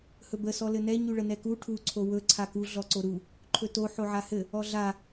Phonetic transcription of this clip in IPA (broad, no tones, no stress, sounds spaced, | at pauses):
h ɵ b ə s ɔ l ɘ n ɛ ɲ y ɭ ə n ɛ k u ʈʰ u ǀʰ o w ɵ ǀʰ a k u ɮ ɔ ǀ o ɾ u | ǃʰ ɵ t o ħ o ʕ a h ɘ | ɔ ɮ a